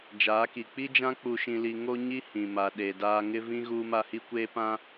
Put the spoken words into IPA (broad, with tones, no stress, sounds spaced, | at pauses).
d͡ʒ aː˨˦ k i˨ k͡p i˦ d͡ʒ ã˦ k͡p u˨ ʃ ĩ˨ l i˨ ŋ o˦ ɲ i˦ h ĩ˨ m a˨ ɗ e˨ d aː˦ ŋ ɪ˦ v ĩ˦ ɣ uː˦ m a˦ h i˦ kʷ eː˦ p ã˦